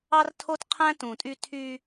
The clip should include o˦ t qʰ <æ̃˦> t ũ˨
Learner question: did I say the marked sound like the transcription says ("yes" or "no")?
yes